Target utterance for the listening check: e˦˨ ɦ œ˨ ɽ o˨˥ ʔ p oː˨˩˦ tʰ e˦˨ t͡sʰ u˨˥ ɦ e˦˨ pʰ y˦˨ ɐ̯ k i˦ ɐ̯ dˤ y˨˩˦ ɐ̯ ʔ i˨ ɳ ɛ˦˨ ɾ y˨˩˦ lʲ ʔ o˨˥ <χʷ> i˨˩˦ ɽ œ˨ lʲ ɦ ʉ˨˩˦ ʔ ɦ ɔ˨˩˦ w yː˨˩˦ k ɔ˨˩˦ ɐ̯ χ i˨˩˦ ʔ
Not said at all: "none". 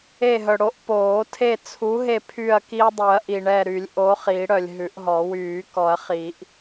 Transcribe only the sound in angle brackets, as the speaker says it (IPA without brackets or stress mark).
χ